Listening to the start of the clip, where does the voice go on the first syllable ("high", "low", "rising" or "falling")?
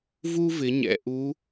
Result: high